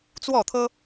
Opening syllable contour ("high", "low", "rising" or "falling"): falling